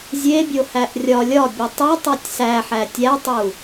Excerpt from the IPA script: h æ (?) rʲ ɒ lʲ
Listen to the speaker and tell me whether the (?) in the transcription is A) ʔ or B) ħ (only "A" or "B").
A